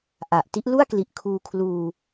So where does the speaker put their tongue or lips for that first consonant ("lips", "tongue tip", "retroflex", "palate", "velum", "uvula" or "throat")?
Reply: throat